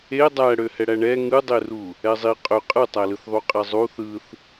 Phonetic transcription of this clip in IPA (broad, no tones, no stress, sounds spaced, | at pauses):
e dˤ æ ɽ ø h ɛ ɽ æ ɳ ɛ ŋ ɯ dˤ e r u | ɛ zˤ i qʼ ø qʼ ɯ tˤ æ l ɯ θ ðˤ u qʼ ɛ zˤ u θ ɯ θ